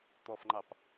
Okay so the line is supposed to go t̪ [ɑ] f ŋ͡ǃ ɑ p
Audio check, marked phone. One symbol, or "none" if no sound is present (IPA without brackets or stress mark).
ɔ